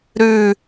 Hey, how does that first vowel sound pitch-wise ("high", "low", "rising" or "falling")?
falling